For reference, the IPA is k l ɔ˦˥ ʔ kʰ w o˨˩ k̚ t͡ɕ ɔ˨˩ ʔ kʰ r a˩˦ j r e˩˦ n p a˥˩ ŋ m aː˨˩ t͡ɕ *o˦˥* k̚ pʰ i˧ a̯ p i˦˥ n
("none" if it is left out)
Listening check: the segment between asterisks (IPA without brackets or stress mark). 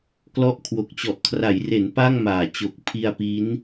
o˨˩